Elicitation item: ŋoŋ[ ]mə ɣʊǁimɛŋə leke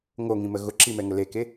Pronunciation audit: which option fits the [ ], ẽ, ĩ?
ĩ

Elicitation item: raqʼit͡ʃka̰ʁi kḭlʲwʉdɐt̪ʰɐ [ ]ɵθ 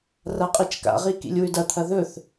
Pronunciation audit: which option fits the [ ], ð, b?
ð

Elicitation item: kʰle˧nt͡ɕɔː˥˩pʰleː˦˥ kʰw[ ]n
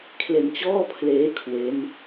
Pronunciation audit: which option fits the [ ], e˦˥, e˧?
e˦˥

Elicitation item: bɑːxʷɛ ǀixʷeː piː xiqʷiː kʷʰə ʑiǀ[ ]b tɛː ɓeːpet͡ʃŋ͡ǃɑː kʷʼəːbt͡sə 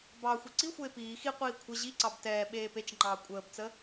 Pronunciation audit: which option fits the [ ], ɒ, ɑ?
ɑ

